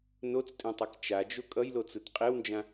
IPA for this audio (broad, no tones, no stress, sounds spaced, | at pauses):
n o t͡s tʼ ẽ tˤ i k t͡ʃ a d͡ʒ o kʼ ʌ j l o t͡s ɯ t qʼ e w n d͡ʒ ã